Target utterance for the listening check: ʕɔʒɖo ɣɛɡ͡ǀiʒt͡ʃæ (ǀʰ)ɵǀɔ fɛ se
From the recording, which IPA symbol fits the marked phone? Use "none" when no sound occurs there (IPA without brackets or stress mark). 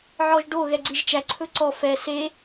ǀʰ